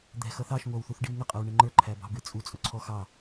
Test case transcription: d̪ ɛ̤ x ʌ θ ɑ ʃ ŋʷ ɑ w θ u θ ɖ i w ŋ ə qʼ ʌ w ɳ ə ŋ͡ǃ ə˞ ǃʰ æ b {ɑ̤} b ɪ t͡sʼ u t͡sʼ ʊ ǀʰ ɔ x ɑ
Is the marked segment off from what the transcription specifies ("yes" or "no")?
no